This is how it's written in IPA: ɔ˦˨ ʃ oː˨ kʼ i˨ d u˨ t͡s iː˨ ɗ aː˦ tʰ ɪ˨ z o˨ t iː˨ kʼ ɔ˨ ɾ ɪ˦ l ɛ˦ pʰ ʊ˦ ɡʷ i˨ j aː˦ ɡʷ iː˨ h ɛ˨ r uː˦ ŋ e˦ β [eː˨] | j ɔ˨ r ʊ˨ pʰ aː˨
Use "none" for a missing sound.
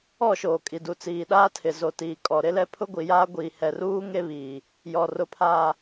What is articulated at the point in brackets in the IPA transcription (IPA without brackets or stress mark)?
iː˨